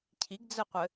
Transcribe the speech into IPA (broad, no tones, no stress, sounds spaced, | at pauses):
cʰ i ɡ d͡z ɘ qʷ ɘ